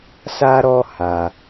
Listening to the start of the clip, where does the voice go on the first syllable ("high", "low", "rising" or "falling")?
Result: high